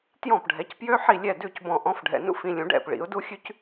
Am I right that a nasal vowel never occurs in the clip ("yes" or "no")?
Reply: no